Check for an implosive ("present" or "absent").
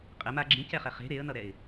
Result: absent